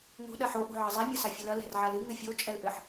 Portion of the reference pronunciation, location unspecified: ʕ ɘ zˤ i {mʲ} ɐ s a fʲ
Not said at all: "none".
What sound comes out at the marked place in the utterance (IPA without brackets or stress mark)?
mʲ